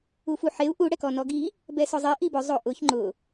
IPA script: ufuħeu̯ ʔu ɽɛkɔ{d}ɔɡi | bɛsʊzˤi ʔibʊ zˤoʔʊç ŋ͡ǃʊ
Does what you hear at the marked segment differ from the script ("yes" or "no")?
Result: yes